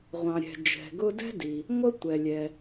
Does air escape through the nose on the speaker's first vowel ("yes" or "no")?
yes